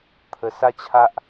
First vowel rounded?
no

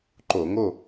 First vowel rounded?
yes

